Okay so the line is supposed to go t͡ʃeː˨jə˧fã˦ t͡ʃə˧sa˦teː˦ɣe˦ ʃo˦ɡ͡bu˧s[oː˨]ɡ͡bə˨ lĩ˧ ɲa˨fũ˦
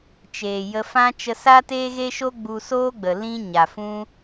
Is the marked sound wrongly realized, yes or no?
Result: yes